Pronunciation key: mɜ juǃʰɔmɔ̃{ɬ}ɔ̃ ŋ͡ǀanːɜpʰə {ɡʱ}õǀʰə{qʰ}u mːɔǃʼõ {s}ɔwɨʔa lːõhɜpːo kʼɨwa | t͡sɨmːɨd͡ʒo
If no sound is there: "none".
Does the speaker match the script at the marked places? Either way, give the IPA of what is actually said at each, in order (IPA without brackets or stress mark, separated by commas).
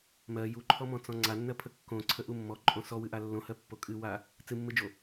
t͡s, kː, ʔ, s